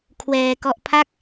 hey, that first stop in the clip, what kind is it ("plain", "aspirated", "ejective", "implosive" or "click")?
aspirated